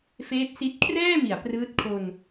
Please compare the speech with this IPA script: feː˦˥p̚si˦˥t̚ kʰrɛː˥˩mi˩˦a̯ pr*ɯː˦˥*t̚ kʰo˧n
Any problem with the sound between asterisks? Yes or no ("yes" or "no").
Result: no